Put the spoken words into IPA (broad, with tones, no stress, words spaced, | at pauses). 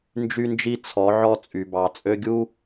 nd͡ʒy˦nd͡ʒi˦ t͡sʰɔ˨˦ʕɔ˦ t͡sʼy˨bɑ˨ t͡sʼø˧ɡʲu˦